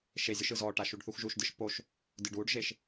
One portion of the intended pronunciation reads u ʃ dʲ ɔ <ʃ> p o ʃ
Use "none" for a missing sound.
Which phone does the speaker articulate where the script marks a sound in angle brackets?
ʃ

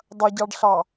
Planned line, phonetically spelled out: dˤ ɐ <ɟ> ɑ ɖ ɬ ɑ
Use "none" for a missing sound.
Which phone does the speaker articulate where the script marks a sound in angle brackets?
ɟ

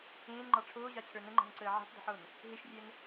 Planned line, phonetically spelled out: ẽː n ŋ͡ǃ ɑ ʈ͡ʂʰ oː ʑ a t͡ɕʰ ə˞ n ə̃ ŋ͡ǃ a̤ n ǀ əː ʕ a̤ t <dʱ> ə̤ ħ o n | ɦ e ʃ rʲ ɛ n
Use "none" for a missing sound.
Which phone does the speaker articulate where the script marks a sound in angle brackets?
dˤ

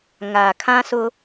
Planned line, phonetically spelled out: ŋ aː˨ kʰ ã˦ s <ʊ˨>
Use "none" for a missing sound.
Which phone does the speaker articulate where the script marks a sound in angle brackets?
ʊ˦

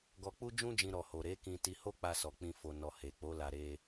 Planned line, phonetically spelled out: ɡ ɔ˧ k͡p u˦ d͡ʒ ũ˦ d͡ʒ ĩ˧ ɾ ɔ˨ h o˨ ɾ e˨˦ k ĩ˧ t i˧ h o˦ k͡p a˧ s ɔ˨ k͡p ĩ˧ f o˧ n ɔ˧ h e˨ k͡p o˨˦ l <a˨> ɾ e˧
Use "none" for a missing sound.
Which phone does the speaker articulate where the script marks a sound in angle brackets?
a˧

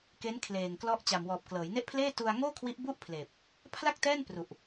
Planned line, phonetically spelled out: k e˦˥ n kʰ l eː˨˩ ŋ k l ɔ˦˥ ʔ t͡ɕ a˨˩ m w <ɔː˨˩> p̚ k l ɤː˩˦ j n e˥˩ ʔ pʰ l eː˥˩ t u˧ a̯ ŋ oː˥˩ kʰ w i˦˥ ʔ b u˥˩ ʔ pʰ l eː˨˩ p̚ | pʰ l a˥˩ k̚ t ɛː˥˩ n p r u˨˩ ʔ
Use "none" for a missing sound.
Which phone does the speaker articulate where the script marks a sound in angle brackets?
ɔː˨˩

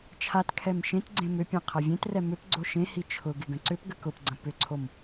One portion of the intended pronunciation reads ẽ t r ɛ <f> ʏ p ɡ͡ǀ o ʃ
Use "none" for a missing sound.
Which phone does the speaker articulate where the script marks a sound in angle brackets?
m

